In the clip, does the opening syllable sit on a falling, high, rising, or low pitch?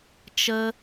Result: high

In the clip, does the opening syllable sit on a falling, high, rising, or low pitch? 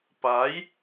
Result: rising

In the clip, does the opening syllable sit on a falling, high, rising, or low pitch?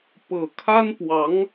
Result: low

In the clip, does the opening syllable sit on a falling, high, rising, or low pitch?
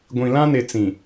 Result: low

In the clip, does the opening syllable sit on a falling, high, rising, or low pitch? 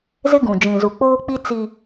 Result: high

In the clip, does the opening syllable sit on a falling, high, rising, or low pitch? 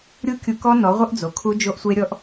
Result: high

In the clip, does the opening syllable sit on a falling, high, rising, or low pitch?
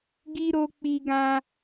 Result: high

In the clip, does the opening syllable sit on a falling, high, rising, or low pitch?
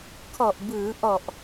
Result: low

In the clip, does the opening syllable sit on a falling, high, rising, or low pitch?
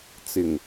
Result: low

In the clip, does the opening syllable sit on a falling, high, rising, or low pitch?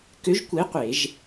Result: rising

